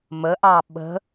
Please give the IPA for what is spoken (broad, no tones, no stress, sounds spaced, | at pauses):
m ə ʔ ɑ ɓ ə̤